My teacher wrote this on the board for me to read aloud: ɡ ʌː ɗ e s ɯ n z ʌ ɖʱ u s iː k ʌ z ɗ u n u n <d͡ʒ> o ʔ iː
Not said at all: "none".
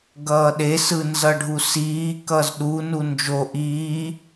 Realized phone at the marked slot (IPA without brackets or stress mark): d͡ʒ